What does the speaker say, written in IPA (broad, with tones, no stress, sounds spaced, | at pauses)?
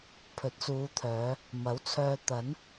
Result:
pʰ ɵ˨˥ t̚ s uː˨˧ t̪ʰ œː˨˧ | m ɐ˨˥ w t͡sʰ œː˧ t̪ ɐ˨˥ n